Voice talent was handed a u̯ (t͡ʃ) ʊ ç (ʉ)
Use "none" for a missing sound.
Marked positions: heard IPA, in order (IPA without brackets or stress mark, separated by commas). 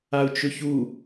t͡ʃ, u